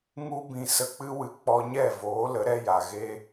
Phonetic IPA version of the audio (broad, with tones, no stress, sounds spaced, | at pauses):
ŋ u˧ b ĩ˨ s ə˨ k͡p ɨ˧ w ɨ˨ k͡p ɔ˧ ɲ ɛ˦˨ v oː˨˦ l ə˨˦ ɾ ɛ˧ j a˨ ɣ e˧